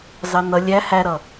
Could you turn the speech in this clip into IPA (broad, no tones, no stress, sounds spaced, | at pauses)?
z ɑ n ʌ lʲ æ h æ ɾ ʌ